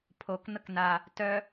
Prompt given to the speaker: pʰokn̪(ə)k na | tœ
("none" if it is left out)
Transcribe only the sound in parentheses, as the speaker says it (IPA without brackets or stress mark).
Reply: ə